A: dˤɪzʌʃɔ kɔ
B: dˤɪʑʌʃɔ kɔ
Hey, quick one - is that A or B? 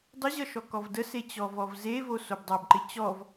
B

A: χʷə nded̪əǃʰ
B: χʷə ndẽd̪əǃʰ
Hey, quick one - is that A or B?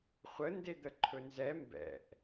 A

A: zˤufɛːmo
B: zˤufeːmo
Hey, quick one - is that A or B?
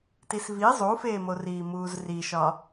B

